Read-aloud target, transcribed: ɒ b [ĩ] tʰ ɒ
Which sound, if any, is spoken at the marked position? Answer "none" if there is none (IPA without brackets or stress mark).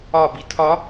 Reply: i